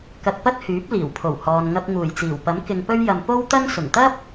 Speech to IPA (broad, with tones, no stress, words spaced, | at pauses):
kɐ˧t̚pɐ˥t̚hyː˨˥p̚ liː˨˩wpʰo˨˩w hɔː˨nŋɐ˧p̚ ŋuː˨˩jt͡siː˨˩wpɐ˨˥m kɪ˧ŋpɵ˥ɥjɐ˧m po˥wt̪ɐ˥ŋ sʊ˨˩ŋt̪ɐ˥p̚